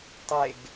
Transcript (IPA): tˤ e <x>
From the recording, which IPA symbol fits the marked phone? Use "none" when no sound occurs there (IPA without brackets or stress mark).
ɡ